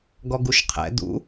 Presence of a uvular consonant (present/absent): present